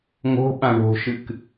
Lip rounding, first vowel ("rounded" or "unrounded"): rounded